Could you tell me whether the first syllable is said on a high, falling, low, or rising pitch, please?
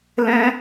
high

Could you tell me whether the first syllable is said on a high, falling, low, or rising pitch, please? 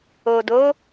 low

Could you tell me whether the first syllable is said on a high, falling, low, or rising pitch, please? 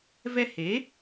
high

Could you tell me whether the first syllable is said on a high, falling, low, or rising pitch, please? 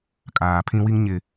low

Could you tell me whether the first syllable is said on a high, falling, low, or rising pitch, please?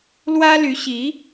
high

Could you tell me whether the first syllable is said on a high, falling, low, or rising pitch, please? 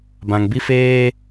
low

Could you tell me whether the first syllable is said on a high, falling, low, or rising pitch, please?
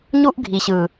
high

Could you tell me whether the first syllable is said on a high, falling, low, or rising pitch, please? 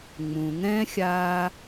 low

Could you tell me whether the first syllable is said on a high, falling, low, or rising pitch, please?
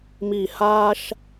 low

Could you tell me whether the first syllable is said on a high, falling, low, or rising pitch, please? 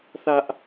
high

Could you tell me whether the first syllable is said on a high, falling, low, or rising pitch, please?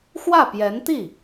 falling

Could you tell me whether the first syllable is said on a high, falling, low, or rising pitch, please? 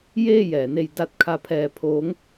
falling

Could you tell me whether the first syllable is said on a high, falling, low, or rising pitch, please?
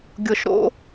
low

